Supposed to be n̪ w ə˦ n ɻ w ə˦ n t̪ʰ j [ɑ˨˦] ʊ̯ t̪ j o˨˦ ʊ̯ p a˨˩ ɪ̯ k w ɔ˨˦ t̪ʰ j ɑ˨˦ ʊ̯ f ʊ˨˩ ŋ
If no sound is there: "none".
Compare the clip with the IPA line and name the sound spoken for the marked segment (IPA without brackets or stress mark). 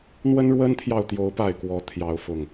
ɑ˨